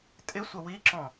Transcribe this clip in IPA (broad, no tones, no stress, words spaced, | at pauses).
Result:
tʼɪsʷə wiǁɔ̃